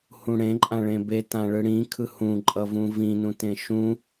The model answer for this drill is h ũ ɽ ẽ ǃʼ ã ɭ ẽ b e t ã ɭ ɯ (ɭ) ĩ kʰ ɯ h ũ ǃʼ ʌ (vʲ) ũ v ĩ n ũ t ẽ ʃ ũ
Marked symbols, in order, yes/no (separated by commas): no, no